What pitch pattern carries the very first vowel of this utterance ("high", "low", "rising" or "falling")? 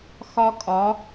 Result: high